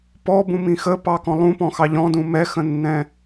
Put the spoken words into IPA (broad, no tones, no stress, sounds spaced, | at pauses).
p ɔ b ũ m ĩ x ə p ɑ k ɔ̃ lˠ ũ p ɔ̃ x ɑ ʎ ɔ̃ d ũ m ɛ x ə̃ nː ɛ̃